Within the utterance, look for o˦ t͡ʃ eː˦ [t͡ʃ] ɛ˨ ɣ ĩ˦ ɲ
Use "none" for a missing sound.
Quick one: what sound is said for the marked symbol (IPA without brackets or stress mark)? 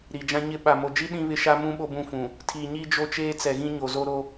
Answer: t͡s